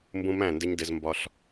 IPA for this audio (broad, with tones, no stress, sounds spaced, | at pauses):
m b ũ˦ m æ̃˦˨ n d ɪ˦ ɲ d ɪ˦ z m b ɒ˦ ɬ